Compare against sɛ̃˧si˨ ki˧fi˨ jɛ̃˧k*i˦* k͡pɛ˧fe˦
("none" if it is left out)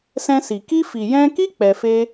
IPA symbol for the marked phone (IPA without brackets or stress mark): i˦